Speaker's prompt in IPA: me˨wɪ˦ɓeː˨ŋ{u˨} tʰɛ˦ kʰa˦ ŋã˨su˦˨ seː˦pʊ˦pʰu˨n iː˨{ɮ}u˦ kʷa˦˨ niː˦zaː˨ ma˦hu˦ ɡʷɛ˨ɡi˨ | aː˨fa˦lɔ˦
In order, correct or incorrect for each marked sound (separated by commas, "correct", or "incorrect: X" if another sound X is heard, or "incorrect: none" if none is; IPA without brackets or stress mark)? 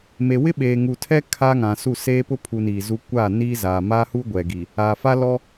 correct, incorrect: z